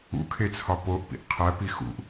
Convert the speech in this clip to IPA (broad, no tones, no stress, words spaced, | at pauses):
ṵkʰet͡sʰɒ poʔpḭʔ qʰæpi xṵʔ